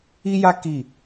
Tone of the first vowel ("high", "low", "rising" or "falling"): high